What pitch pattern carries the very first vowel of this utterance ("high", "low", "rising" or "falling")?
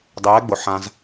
rising